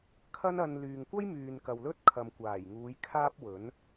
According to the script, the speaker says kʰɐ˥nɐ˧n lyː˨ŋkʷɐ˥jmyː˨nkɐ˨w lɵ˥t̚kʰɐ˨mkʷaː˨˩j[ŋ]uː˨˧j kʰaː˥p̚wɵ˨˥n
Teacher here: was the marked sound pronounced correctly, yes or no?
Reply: yes